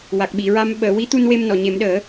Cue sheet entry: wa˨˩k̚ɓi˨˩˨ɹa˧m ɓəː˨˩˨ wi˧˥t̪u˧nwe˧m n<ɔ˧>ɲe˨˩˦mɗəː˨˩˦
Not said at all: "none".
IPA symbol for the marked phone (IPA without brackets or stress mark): ɔ˨˩˨